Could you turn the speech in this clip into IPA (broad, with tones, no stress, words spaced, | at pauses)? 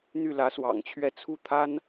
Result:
n̪y˥˩lä˧˥swɑ̰˨˩ŋt͡ɕʰɥɛ˥˧ t͡sʰu˥˩t̪ʰa˥n